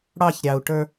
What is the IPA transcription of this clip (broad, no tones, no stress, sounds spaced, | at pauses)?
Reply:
ɽ ɑ ç ɾʲ ɑ u̯ ʈ ə˞